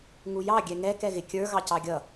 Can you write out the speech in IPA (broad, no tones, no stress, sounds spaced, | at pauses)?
ŋ u j ɑ ɡʲ ɛ ŋ ɛ k ɛ ɣ ɪ kʲ ə˞ ɣ ɑ c ɑ ɡʲ ʌ